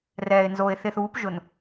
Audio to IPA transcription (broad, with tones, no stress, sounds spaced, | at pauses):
r ɛː˨ ɪ̯ n z o˨ ɪ̯ θ ɪ˨ θ uː˨˦ p ʒ ʊ˨ n